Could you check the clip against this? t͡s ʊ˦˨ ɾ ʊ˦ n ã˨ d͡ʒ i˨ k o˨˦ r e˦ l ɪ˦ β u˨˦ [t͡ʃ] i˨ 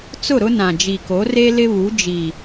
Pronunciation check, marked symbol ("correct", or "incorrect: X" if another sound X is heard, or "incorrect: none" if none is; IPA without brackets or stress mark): incorrect: d͡ʒ